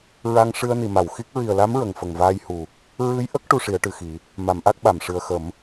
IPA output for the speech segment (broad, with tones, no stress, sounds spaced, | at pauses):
ɹ a˧ ŋ ʂ ɨ˧ ə̯ n i˨˩˨ m a˨˩˨ w x i˦˥ k̚ ɹ i˨˩ ə̯ l a˧˥ m ɹ ə˨˩ ŋ f ə˨˩ ŋ v aː˧ j h u˨˩ | ɹ ɨ˧˥ j ʔ ə˦˥ k̚ ʈ u˧ ʂ i˨˩˦ ə̯ ʈ ɨ˨˩ x i˨˩˦ | m a˨˩˦ m ʔ a˦˥ k̚ ɓ a˨˩˨ m ʂ ɨ˨˩ ə̯ x ə˨˩˦ m